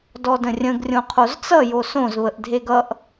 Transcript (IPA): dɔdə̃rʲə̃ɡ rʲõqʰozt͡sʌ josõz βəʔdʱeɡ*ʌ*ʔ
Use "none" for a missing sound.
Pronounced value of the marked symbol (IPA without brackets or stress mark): ʌ